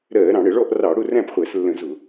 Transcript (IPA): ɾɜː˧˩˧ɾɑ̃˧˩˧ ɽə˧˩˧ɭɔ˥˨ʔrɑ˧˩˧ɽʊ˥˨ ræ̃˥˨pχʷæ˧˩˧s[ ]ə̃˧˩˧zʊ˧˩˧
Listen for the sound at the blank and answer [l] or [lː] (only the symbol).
lː